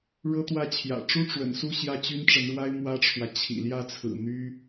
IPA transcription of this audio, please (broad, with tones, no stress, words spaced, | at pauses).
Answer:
ɻɤ˥ t̪wä˥˩t͡ɕʰjä̰˨˩ ʈ͡ʂu˥ʈ͡ʂwə̰˨˩nsu˥˧ ɕjä˥˩t͡ɕy˥nʈ͡ʂə˧˥nɻwa˥ɪ̯ mwä˥ʈ͡ʂʰwä˨ t͡ɕʰḭ˨˩ljä˥˩t͡sʰɹ̩˨˩ n̪y˥